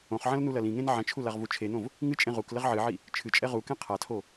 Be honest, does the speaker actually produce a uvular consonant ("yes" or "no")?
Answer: yes